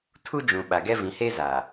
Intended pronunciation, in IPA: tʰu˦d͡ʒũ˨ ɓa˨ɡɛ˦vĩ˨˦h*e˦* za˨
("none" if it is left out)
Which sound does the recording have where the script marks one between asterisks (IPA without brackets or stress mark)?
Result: e˦